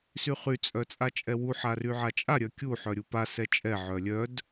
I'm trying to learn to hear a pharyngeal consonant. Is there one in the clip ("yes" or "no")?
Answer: yes